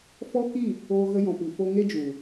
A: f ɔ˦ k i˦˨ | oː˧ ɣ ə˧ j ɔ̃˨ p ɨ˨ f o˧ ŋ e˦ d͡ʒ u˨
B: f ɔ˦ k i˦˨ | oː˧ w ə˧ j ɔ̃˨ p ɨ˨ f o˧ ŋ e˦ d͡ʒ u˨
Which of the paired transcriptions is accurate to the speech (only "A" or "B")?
A